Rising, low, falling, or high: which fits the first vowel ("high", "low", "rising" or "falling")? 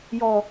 low